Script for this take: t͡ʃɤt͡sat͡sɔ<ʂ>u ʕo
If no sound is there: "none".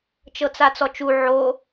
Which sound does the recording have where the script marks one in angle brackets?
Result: t͡ʃ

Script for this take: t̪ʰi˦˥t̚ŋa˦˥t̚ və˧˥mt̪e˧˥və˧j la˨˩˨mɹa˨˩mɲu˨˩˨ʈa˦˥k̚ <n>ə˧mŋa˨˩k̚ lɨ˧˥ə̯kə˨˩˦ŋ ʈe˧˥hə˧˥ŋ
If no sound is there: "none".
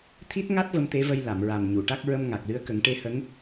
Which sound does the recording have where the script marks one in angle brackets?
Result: ɹ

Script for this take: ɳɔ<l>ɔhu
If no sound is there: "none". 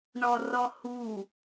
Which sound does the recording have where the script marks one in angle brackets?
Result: r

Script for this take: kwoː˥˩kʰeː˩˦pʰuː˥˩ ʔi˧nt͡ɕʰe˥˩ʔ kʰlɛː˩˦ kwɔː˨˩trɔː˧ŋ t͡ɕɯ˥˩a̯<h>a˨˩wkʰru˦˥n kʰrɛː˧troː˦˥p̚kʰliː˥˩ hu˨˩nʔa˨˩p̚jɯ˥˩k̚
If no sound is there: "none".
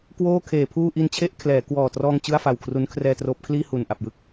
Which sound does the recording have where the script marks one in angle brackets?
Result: f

